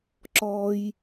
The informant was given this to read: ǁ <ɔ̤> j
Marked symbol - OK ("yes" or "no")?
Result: no